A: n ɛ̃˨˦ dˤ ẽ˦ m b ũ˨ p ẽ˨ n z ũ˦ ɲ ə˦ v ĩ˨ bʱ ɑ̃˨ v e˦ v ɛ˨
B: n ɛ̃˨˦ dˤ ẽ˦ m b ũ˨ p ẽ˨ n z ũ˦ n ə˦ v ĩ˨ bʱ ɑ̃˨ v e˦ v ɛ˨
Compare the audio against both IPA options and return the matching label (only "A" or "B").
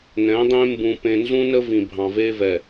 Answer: B